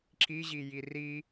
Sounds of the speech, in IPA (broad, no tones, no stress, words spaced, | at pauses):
ǁiʑi jiri